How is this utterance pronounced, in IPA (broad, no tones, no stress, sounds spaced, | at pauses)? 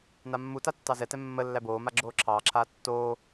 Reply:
n a mː u t a tː ɑ z ɛ t ɛ mː ə lː æ b oː m a ɡ͡ǁ oː ǁʰ ɑː ǁʰ aː tː oː